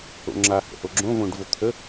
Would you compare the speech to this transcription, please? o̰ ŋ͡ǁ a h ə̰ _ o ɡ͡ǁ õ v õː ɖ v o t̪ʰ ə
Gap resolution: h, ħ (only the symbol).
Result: h